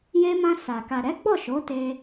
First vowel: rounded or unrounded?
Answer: unrounded